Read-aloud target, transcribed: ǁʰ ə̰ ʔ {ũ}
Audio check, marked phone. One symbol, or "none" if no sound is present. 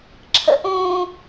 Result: ũ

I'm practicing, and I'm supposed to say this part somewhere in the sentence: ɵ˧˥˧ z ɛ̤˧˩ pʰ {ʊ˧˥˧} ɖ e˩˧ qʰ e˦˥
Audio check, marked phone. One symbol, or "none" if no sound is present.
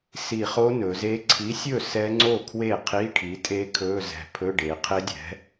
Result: ɵ˧˥˧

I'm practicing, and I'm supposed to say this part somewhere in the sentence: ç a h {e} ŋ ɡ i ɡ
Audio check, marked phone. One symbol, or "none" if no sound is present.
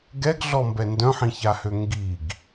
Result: ø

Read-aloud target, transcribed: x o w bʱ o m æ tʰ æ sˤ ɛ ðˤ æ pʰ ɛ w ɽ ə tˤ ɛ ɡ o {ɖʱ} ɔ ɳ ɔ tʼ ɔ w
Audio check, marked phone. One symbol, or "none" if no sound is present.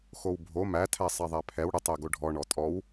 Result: ɖʱ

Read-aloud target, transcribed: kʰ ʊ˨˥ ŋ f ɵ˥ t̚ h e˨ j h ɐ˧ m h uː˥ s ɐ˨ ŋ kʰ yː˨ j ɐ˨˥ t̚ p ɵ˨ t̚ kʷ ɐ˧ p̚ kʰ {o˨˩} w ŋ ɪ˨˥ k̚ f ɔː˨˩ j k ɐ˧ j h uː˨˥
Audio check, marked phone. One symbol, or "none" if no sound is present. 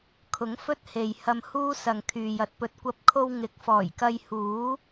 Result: o˧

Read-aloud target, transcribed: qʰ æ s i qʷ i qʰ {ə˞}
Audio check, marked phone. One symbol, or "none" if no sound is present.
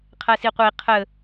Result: ə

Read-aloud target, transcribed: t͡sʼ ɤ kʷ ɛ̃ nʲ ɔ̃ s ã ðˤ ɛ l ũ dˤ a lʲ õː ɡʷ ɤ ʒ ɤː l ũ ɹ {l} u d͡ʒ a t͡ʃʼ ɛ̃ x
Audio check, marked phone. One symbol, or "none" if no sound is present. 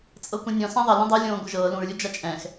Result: lʲ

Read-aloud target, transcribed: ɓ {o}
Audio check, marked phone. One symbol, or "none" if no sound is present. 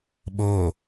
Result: oː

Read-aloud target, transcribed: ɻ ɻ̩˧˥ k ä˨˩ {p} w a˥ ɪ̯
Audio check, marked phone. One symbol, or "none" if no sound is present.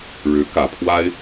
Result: pʰ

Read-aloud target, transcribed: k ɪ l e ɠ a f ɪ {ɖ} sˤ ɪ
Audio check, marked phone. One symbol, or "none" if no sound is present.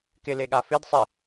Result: d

